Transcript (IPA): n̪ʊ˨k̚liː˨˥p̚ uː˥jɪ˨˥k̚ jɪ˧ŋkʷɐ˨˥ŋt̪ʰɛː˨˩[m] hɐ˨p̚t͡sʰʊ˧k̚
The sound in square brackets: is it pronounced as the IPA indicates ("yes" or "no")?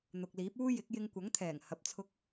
no